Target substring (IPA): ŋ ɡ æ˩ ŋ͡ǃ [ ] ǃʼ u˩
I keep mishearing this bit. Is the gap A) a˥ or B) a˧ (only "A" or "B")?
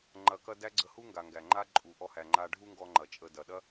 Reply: A